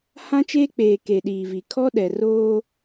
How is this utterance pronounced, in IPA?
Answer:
hã˦t͡ʃeː˦k͡peː˨ ke˨ɗiː˨vi˨ kʰɔ˦ ɗɛ˨roː˦

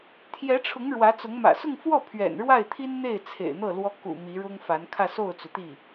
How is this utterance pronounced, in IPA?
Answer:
t̪ʰjɛ˧˥ʈ͡ʂʰʊ˧˥ŋ ɻwä˧˥t͡sʊ˧˥ŋ mä̰˨˩sʊ˥˧ŋfwɔ˥˩ pʰɥɛ̰˨˩nɻwa˥˩ɪ̯t̪ʰi˥nn̪e˥˩ɪ̯ t͡sʰḛ˨˩ɪ̯n̪ɤ˥˩ lwɔ˥ kṵ˨˩ mi˧˥ɻʊ˥ŋfa˧˥n kʰä˥˧so˥˩ʊ̯t͡su˩t̪i˥˩

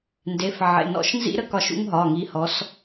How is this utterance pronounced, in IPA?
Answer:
nde˩˧˩f ʕḛ˩˧˩nɔ̰˧˩ʃ nzḭ˦ɾə˨˦kɒ˧˩ʃ ṵ˦ŋɦɒ˩˧˩ŋi˨˦hɔ˨˦s

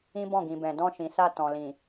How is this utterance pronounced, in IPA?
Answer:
ĩ˦bɔ̃˦˨ɡĩ˨bɛ̃˨ dɔ̃˧ʃĩ˨sa˧ tɔ̃˨lĩ˨

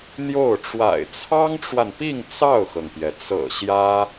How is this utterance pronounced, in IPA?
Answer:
n̪jo˥˩ʊ̯ ʈ͡ʂwa̰˨˩ɪ̯t͡sʰɑ˥ŋʈ͡ʂwa˨npi˥˧ŋ t͡sɑ˥˩ʊ̯xɤ˩ŋpjɛ˩t͡sɤ̰˨˩ ɕjä˥

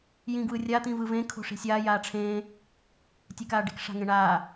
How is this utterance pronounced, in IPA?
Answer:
jĩɡwɯrʲa t̪ĩvɯvẽ kʰo̤ʂi̤sʲaː jaːʈ͡ʂʰẽː | tʲekaːɖi̤k ʂa̤ŋẽɳaː

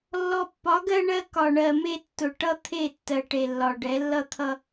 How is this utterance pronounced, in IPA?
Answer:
lːɔ˨pːɒ˨˦ ɡɜ˦ɳɜ˦ kɒ˨ɳɜ˨ me˦ tːʊ˨ʈʌ˦ t̪ʰe˦˨tːɜ˨ ʈe˨lːɒ˨ɖɛ˨˦ lːʌ˦t̪ʰʌ˦

